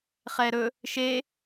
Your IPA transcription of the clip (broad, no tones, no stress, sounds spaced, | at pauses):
χ ɛ ɾ ɵ | ʃ e